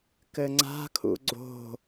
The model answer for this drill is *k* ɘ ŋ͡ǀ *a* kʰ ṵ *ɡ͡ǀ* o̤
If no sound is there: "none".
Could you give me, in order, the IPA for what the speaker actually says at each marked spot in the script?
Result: k, a̤, ɡ͡ǀ

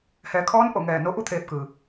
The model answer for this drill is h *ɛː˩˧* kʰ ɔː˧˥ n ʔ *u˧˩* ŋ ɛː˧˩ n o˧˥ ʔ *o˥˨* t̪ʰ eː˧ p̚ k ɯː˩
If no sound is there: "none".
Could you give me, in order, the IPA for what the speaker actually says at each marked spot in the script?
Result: ɛː˩˧, o˧˩, u˥˨

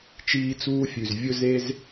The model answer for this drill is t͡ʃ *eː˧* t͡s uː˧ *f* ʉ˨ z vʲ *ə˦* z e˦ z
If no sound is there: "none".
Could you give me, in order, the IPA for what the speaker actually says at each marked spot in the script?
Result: iː˧, fʲ, ɵ˦

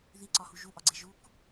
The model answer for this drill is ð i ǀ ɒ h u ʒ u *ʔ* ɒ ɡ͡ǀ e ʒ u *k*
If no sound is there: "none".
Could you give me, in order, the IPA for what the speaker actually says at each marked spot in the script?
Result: ʔ, k

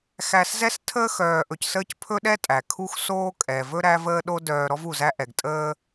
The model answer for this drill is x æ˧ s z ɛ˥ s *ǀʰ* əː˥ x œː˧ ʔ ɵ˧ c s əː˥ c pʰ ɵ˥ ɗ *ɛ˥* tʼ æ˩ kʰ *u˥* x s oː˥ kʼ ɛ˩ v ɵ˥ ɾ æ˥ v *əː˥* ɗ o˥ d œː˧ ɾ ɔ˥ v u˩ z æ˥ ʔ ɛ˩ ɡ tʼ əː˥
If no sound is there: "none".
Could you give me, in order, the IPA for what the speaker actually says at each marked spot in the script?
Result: tʰ, ɛ˥, u˥, əː˥

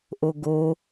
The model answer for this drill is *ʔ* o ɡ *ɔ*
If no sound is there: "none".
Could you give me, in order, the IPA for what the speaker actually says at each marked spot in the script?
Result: ʔ, o

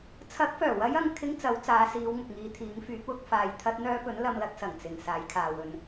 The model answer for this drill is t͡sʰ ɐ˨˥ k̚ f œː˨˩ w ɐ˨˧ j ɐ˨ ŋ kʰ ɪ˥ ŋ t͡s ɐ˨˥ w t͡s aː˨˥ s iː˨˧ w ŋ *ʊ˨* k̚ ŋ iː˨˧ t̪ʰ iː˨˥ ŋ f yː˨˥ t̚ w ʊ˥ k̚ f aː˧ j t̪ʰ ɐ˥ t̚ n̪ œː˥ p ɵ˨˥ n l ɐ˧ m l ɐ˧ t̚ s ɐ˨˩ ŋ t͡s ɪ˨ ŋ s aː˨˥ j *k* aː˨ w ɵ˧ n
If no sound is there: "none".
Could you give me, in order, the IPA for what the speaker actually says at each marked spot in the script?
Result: ʊ˨, kʰ

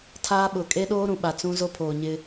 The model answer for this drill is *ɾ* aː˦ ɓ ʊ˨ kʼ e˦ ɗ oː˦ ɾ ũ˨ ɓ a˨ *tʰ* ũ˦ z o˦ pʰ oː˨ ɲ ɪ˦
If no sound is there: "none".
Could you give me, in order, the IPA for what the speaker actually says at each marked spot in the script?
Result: tʰ, t͡s

